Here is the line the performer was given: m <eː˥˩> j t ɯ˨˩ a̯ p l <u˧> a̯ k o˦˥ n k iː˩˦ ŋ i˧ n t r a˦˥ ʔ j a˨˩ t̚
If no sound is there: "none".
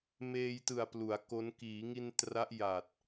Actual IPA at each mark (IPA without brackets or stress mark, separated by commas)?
eː˧, u˩˦